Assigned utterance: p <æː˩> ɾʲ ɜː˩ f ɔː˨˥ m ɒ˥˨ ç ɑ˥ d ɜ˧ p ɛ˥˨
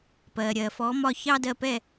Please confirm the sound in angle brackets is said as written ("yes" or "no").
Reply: no